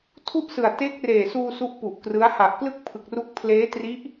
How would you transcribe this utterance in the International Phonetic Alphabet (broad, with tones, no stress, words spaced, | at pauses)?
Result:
tʰu˥˩ʔsɯ˨˩a̯ te˦˥k̚reː˨˩suː˧ su˦˥ʔpu˨˩ʔkrɯ˦˥a̯ ha˨˩ʔklɯ˥˩k̚pʰɯ˨˩k̚ru˦˥k̚ pʰleː˦˥tri˦˥ʔ